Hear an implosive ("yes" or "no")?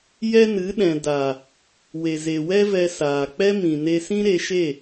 yes